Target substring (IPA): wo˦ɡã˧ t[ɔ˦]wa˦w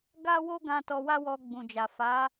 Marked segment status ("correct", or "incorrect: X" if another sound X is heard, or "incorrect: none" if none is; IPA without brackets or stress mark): incorrect: ɔ˧